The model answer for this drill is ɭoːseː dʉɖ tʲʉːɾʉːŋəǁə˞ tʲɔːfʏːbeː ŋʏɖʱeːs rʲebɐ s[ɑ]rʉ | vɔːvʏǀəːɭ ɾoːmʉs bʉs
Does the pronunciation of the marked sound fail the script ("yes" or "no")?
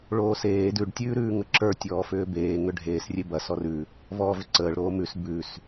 yes